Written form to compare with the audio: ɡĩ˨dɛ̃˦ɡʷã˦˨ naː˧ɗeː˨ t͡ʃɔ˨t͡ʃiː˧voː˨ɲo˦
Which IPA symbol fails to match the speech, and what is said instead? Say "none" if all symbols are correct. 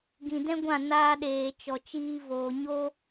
none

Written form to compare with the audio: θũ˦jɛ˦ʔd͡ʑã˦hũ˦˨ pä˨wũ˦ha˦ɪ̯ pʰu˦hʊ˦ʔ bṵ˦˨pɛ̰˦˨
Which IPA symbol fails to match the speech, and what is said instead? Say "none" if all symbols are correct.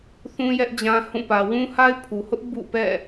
u˦ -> u˨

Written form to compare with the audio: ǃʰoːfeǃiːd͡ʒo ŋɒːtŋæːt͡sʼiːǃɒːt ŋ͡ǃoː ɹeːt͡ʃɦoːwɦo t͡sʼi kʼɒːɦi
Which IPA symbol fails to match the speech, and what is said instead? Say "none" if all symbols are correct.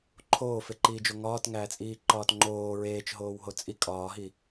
none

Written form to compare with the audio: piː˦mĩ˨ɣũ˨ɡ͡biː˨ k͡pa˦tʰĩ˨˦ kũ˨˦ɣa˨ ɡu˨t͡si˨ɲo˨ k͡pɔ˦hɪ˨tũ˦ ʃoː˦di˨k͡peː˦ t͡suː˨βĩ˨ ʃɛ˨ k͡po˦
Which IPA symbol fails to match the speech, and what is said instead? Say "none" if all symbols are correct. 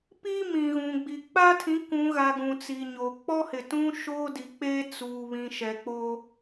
u˨ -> ũ˨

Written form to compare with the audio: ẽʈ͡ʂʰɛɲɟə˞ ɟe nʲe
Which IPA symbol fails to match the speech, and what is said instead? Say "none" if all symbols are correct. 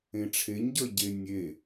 ɛ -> e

